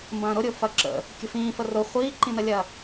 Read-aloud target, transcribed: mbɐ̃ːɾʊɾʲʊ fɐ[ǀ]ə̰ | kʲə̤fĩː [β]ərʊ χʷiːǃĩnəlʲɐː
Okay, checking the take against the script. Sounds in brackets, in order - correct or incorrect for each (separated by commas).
incorrect, incorrect